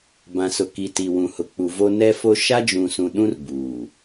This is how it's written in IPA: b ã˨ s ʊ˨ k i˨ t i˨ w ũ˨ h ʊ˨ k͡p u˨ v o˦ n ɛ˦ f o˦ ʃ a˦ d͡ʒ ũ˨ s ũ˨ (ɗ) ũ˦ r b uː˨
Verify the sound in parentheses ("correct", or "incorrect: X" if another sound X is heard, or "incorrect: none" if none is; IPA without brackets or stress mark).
correct